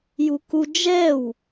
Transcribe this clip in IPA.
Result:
j u k u d͡ʒ ɛ w

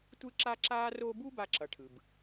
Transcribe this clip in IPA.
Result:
tʷ ɯ˥ ǁ a˥ ǁ aː˥ r o˦ b u˥ b a˦ ǁ ʌ˨ ʈʰ ɯ˩ b

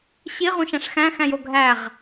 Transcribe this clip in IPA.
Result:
ɕ i ʁ ũ ʃ æ̃ ʂ x æ̃ x æ̃ j o ɡʱ æ ʁ

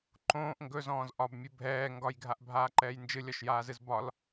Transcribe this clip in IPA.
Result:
ǃ õː ʔ ŋ ɡ ɵ z ɔ̃ː z ʔ ɒ b mʲ ɨ bʱ ɛː ŋ ɡ ɒ j ɡʱ a ʔ bʱ aː ǃ ɛː j n d͡ʒ ɨ lʲ ɒ ʃ j aː z ɨ z b ɒ l

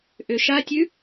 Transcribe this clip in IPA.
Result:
ʔ ʏ ʃ a tʲ ʉ

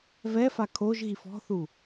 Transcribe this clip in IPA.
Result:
v ɛ f a kʰ o ʒ ɣ i f ɔ̤ θ u

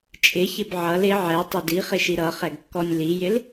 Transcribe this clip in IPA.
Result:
t͡ʃʼ ɪ ç ɪ b ʕ ʌ l ɪ ʕ ɛ tˤ ɪ d i χ ɪ ʃ i ɾ ʌ χ ɛ ɡ kː ɔ nʲ l i j ɪ l

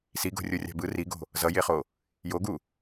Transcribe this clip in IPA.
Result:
s i ɡ o̤ rʲ o rʲ a̤ b ɯ r i ɡ o̤ | z ʌ j e χ o | j o ɡ u

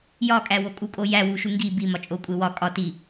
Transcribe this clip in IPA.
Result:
j ɒ kʼ æ w o kʼ u kʼ o j æ w u ʃ u ŋ ɡ i b i m ɒ t͡ʃʼ o kʷʼ e w ɒ kʼ ɒ t i

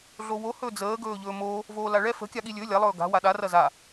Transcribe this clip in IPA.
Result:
ɮ o w o h ɵ d͡z əː ɡ ɵː ʎ ɵː m oː | v oː l a ɭ ɛ f ə̤ kʲ a ɠ i lʲ ɵ lʲ a lˠ ɵː ɡ a̤ w a ɗ a r ɐ z a

